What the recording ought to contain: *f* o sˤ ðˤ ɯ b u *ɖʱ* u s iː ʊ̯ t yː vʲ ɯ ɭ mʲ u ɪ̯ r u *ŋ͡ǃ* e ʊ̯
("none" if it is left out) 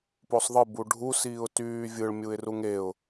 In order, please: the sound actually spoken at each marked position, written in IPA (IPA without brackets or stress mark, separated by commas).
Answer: p, ɖʱ, ŋ